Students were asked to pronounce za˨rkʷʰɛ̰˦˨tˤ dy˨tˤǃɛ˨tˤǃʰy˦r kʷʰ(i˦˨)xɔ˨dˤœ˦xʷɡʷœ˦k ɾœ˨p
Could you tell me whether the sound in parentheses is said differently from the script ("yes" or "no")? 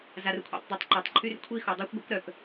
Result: no